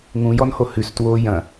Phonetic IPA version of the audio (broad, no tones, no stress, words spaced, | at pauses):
ŋũjɔnho hʉstwoː jɐ̃